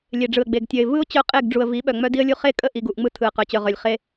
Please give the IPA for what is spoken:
lʲ e˨ ɖ͡ʐ ɯ˨ ə̯ ɡ͡b e˨ ɡ tʲ œ˨ ɪ̯ v ɯ˦ ʊ̯ t͡ɕ œ˦ qʼ e˦˨ ɡ ɖ͡ʐ u˨ ə̯ v i˨˦ ɓ œ˨ ŋ͡m œ˦ d i˦ ə̯ lʲ u˦ χ e˦ kʼ ə˦˨ ʔ i˨ ɡ u˦˨ ʔ ŋ͡m ɯ˦ tʰ ɯ˨ ə̯ q œ˨ t͡ɕ œ˨ ʁ œ˨ lʲ χ e˦

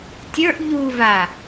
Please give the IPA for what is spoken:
tʲ ə˞ ʔ ʎ u v a

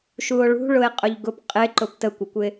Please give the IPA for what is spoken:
ʃ u o̯ ɭ ṳ ɭ ʊ e̯ qʼ ʊ ʎ ɡ ʊ p qʼ ɪ ǃ ʊ p t ə kʷ ɪ kʷ ɪ

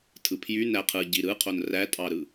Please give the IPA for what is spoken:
tʰ ɯ pʰ j y n æ qʰ ɯ ɟ i ɾ ɯ qʰ o n r æ tʼ ɑ ɾ ɯ

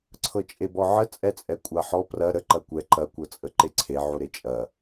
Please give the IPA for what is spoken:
ǀʰ ɤ t͡ʃʼ e b ɔ ʕ ə t͡sʼ ɛ t͡sʼ ɛ kʷʼ a ħ ɔ p r ɐ ɾ ə ǃ ɐ kʷ ɛ ǃ ɐ kʷ ɤ t͡sʼ ə ǃ e ǀʰ e ʕ u ɾ e t͡ʃʼ ɐ

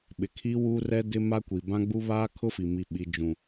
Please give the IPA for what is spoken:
ɓ ɪ˨ kʰ i˦ w uː˦ r ɛ˦ d ɪ˦ m a˦ kʷ i˨ b ã˦ ɡ͡b u˦ β aː˦ kʰ ʊ˦ f i˨ m i˨ ɓ i˨ d͡ʒ ũ˨

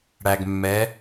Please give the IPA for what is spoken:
ɽ æ˨ ɡ mː ɛ˨˥

